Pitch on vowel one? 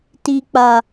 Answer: low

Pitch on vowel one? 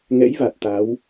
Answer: rising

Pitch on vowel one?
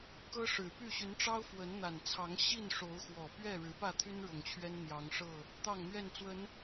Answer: high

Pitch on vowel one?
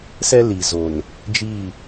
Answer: high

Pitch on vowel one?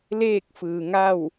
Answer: falling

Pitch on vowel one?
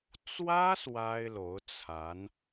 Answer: high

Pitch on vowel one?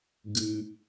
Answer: low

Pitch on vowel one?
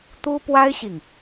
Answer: high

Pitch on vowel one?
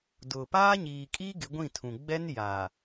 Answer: low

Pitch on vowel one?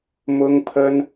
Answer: high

